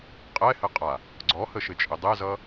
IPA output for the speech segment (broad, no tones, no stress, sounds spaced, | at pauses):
qʼ ɛ h ɘ qʼ a | ɡ͡ǀ ɔ h ə ʃ ɘ t͡ʃʼ ɘ dˤ ɛ z ʌ